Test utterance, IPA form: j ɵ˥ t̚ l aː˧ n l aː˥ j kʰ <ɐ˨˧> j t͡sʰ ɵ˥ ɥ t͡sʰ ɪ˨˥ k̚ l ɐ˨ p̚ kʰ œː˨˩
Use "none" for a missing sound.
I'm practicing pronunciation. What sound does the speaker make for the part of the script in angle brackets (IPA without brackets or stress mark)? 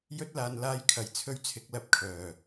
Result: ɐ˨